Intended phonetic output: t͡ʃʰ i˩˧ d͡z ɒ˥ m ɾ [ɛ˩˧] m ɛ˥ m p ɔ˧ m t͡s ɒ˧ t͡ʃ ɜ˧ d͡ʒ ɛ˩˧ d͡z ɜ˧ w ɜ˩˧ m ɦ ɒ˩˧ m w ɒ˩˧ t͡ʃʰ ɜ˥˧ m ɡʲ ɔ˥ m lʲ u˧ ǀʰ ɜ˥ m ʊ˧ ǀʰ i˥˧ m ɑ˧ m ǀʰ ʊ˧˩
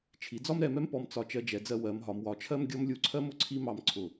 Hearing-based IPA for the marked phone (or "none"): ɛ˩˧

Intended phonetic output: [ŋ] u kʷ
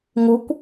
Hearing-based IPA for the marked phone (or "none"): ŋ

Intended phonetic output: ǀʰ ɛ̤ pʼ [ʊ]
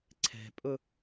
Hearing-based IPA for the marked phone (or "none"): ʊ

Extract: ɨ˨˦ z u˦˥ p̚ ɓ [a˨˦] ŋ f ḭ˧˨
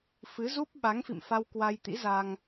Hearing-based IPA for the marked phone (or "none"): a˨˦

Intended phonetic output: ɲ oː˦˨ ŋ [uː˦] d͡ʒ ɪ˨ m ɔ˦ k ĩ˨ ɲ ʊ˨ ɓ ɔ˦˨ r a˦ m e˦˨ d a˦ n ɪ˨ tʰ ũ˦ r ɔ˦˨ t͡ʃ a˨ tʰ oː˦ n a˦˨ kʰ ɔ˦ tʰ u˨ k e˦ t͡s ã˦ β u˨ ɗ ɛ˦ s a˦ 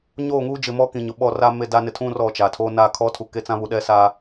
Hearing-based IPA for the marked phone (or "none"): uː˦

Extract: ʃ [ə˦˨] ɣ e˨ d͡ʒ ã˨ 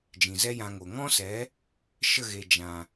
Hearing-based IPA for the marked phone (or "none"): ə˦˨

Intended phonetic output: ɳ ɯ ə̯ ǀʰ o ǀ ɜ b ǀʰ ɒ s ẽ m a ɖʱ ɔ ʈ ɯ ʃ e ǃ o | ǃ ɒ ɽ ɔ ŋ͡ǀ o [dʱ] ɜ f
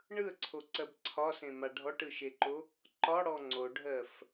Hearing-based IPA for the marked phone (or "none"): ɖʱ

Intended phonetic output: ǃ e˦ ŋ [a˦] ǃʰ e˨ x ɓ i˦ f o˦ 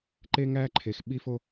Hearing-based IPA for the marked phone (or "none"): æ˦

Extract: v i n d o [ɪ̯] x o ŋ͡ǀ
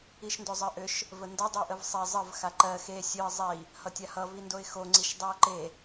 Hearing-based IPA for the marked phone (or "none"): ɪ̯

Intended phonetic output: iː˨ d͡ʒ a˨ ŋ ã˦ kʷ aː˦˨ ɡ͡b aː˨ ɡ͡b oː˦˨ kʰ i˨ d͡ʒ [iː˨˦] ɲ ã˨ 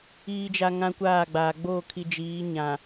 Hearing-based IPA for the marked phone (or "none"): iː˨˦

